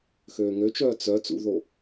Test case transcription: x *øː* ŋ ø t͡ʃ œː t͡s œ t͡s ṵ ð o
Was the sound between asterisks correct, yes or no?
yes